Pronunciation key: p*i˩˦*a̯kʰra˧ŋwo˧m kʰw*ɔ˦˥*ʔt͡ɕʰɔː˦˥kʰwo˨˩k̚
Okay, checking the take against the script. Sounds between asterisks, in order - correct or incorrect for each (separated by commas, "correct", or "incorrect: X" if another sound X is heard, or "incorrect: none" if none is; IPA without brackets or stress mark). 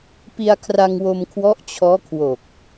incorrect: i˧, correct